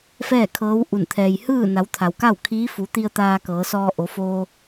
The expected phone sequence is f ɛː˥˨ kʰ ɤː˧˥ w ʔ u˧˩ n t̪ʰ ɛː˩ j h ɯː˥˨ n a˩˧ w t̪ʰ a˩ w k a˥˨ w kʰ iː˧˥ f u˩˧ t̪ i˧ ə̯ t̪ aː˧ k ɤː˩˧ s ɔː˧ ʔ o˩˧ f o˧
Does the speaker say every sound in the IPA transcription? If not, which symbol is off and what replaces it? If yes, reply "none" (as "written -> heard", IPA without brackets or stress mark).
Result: none